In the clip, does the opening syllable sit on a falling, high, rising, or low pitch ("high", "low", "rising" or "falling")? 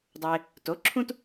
low